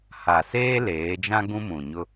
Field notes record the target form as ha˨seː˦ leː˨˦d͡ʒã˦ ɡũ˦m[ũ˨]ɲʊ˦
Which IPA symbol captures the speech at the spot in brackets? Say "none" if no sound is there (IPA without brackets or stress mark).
ũ˨